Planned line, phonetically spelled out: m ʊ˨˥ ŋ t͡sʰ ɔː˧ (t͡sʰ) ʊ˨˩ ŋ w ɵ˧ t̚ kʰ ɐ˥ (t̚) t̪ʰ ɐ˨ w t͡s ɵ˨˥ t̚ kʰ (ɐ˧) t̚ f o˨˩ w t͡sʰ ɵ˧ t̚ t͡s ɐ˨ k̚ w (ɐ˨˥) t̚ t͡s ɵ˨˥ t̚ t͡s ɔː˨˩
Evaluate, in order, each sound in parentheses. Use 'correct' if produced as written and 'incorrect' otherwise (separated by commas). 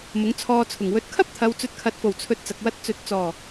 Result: correct, incorrect, incorrect, incorrect